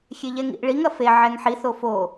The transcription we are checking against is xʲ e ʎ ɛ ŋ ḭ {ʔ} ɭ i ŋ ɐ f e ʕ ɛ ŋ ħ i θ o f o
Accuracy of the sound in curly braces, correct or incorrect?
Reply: correct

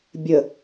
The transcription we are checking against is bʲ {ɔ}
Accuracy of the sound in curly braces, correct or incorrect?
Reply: incorrect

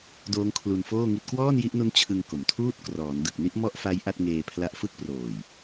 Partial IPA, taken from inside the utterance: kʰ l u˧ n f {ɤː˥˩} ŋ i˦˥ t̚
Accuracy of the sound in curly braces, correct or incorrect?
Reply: incorrect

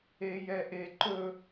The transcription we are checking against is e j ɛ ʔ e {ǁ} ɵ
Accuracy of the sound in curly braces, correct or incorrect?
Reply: incorrect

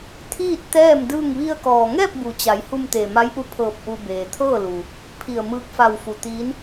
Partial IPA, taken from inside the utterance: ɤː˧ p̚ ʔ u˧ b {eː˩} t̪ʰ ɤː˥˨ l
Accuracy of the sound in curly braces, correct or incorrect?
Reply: correct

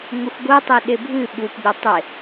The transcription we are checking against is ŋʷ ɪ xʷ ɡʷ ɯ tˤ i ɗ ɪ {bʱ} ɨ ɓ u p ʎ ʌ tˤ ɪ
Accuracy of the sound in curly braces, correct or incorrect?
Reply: correct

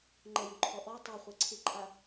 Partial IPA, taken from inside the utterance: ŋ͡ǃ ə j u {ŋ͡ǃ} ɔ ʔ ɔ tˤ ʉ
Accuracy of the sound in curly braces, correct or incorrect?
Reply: incorrect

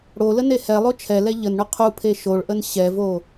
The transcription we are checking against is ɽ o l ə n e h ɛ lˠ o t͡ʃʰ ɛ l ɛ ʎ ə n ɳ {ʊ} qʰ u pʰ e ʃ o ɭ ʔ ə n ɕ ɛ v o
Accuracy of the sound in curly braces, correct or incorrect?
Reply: correct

